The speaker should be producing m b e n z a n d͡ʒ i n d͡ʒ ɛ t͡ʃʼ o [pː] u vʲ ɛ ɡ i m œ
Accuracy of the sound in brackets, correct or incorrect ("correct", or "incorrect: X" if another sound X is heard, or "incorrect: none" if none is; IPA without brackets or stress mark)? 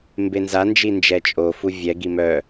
incorrect: f